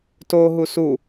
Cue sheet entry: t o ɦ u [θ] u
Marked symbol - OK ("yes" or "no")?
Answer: no